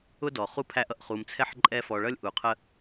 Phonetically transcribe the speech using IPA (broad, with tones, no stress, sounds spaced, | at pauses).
ʊ˥ d ɔ˩ χ u˥ pʰ æ˦ ʔ ʌ˩ ʔ χ u˨ m t͡sʰ ɛ˥ ħ ǃʼ ɛ˦ f ɔ˨ ɭ ʌ˥ lʲ ʔ u˩ qʰ ə˦